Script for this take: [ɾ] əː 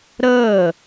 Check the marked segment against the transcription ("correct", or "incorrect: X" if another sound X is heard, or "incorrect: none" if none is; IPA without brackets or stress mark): correct